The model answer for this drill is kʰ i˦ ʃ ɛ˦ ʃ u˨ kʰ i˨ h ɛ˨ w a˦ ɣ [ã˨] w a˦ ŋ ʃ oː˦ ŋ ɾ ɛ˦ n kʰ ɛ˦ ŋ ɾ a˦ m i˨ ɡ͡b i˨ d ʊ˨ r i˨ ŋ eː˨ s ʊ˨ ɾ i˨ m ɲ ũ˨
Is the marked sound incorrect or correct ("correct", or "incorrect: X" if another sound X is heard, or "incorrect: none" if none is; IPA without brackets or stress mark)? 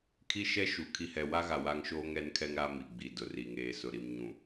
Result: incorrect: a˨